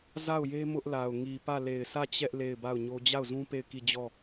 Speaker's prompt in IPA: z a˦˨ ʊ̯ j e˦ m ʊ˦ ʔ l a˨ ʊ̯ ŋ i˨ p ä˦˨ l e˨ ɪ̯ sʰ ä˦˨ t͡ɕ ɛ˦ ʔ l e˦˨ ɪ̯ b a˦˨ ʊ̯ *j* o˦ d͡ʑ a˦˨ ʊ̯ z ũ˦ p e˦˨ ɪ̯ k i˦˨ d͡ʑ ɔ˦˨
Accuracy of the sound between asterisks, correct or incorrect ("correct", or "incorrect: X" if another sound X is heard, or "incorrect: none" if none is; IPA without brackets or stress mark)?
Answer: incorrect: ɲ